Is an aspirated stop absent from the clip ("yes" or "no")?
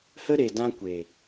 yes